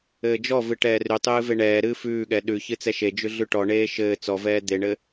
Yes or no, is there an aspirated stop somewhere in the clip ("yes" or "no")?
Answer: no